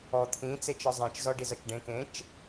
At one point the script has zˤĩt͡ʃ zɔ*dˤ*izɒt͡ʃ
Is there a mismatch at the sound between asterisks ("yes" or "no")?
yes